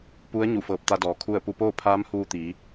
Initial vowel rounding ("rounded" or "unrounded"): rounded